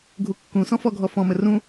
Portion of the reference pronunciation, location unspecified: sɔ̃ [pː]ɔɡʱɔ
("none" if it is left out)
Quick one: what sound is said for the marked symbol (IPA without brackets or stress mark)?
f